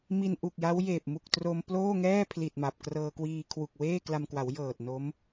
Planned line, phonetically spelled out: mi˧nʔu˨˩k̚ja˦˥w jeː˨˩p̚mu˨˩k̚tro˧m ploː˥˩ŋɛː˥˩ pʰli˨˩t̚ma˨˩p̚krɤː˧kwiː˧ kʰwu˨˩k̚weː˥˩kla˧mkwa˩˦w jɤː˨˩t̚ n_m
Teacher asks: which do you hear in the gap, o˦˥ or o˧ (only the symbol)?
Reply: o˦˥